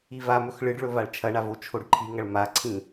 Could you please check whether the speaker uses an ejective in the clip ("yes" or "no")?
no